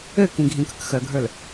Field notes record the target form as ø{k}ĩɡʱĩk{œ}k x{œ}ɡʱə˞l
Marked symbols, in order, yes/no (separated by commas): yes, no, yes